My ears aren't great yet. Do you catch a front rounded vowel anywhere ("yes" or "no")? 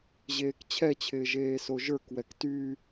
yes